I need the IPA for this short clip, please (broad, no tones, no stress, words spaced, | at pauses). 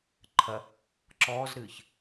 ǃʰɐ | ǁɔːzɾɨːç